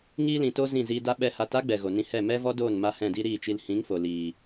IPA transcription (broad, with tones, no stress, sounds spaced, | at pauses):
ŋ iː˧ l ĩ˨ t o˧ z ĩ˦˨ z iː˧ d a˦ ɓ ɛ˧ h a˨˦ t a˦ ɡ͡b ɛ˨ ɣ o˨ n ĩ˧ h ɛ˦˨ m ɛ˦ v ɔ˦ d oː˦˨ n m a˦ h ɛ̃˦˨ d i˦ ɾ iː˦˨ t͡ʃ i˧ l h ĩ˨˦ ŋ f o˨ l iː˨